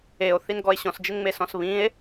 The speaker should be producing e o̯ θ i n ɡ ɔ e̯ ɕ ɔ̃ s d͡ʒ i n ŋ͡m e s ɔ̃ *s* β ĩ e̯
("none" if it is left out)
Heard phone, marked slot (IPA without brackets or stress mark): s